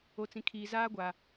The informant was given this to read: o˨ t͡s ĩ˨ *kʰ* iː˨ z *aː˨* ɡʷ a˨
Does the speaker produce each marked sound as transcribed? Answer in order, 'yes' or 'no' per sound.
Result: yes, no

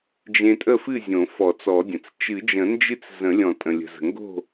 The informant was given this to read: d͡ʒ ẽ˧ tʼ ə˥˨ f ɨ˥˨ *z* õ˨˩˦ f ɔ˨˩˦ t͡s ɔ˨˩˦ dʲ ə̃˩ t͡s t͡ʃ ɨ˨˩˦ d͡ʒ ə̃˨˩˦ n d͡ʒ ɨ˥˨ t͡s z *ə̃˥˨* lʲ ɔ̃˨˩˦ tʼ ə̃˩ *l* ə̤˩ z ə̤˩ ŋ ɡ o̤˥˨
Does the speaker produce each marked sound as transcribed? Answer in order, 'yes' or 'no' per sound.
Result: no, no, no

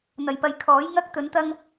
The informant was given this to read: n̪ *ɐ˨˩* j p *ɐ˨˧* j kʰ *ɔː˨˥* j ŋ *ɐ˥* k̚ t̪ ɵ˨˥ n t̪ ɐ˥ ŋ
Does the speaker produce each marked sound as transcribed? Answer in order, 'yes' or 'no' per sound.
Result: yes, yes, yes, yes

